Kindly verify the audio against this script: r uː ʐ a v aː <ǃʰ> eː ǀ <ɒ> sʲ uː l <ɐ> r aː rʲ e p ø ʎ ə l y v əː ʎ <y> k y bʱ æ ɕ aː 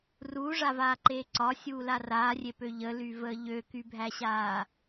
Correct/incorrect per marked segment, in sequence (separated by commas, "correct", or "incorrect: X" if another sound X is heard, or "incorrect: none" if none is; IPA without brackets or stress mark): incorrect: ǃ, correct, incorrect: a, incorrect: ø